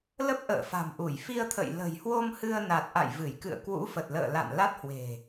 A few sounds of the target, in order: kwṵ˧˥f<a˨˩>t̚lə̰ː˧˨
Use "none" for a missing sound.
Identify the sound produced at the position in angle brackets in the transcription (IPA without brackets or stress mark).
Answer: ə˨˩